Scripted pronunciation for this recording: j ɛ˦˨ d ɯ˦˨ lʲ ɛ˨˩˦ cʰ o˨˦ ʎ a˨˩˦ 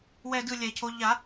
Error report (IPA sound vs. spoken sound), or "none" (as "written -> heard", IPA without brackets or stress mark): j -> w